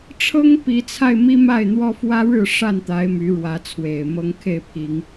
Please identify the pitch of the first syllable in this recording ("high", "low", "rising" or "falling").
high